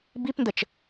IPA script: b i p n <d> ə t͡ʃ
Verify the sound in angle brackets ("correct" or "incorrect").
correct